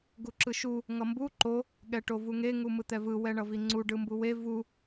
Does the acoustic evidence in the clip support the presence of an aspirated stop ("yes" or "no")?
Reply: no